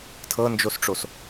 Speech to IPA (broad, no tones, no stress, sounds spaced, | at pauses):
tʰ ɤ n d͡ʒ o s ʈ͡ʂ o s